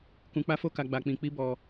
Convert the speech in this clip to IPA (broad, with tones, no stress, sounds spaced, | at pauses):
k ũ˧ k͡p a˦ f o˦ k a˧ ɡ͡b a˧ k͡p ĩ˧ k͡p i˦ b ɔ˧